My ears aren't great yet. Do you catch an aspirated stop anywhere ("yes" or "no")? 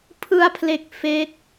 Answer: yes